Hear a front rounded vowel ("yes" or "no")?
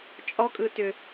yes